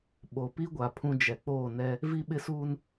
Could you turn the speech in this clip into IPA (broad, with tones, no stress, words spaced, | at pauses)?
ɓo˨pi˦ɡʷa˨ pʰũ˦d͡ʒɛ˨ k͡poː˦˨nɛ˦ | vi˦ɓɪ˦suː˦n